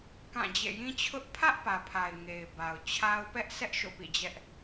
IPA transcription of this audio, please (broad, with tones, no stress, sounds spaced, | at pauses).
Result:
k ã˦˨ d͡ʑ ḛ˦˨ j ĩ˦ t͡ɕʰ ʊ˦ ʔ pʰ ä˦ ʔ p ä˨ pʰ a˨ ɪ̯ ŋ e˨ ɪ̯ b a˨ ʊ̯ t͡ɕʰ a˦ ʊ̯ p ɛ˦ ʔ s ɛ˦ ʔ ʃ o̰˦˨ p ḭ˦˨ d͡ʑ ɛ˦ ʔ